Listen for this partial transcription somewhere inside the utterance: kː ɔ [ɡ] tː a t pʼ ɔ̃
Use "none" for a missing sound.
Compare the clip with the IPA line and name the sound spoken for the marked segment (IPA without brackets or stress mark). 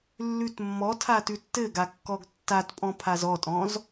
ɡ